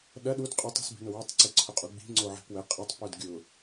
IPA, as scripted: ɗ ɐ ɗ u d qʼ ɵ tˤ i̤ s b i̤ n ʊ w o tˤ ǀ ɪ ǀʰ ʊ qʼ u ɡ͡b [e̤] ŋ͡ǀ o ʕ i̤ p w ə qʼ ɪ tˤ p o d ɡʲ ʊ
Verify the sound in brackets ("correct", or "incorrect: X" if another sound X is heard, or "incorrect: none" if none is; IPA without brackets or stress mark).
incorrect: i̤